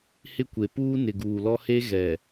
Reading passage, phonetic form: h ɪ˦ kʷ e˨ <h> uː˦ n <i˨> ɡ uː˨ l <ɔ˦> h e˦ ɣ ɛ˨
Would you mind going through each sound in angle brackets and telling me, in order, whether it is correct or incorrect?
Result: incorrect: p, incorrect: ɪ˨, correct

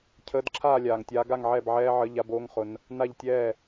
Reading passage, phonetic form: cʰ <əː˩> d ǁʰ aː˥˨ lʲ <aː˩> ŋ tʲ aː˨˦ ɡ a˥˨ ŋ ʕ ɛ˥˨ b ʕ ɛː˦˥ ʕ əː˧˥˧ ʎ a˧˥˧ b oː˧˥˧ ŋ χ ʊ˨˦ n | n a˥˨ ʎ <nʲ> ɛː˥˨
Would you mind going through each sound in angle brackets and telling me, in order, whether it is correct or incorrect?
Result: incorrect: əː˧˥˧, correct, incorrect: tʲ

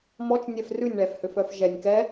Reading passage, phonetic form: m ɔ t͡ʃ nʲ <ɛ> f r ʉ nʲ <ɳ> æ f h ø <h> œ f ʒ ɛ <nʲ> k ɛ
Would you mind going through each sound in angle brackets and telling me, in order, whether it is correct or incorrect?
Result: correct, correct, incorrect: f, correct

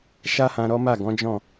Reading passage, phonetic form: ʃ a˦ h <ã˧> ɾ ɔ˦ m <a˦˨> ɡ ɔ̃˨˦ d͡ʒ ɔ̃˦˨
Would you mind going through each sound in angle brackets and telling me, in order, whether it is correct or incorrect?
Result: correct, correct

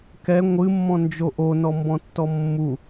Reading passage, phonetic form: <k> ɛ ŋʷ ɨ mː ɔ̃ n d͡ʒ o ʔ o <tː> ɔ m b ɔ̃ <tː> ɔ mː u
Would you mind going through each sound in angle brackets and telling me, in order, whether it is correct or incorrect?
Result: correct, incorrect: n, correct

